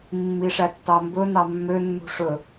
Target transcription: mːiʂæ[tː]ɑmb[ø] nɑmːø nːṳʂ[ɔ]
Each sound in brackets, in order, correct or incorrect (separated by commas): correct, incorrect, incorrect